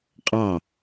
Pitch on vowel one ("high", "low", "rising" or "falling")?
falling